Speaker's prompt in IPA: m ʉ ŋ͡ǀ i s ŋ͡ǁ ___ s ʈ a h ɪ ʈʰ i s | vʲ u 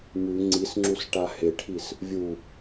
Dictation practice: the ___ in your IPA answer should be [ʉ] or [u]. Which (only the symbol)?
u